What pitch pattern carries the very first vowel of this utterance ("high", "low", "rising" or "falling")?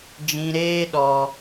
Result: low